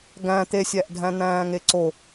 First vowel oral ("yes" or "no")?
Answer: no